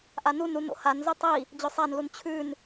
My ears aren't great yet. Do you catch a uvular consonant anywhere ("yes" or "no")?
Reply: no